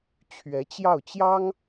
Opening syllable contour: rising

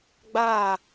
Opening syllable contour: falling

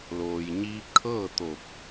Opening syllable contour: low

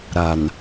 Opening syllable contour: low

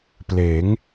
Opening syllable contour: rising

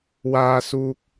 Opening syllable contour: low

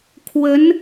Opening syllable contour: rising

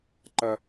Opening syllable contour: high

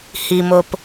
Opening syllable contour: low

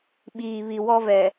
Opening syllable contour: low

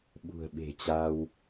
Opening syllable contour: low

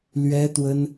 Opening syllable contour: high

